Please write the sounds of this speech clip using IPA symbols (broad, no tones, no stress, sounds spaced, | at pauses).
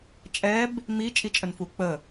t͡ʃʼ ɛ b | m i t͡ʃʼ i t͡ʃʼ ə n f u k͡p ə